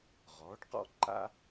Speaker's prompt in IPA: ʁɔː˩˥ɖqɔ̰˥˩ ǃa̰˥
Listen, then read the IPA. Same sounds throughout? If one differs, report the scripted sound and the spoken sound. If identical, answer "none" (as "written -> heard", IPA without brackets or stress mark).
none